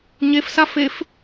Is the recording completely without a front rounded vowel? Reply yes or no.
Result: yes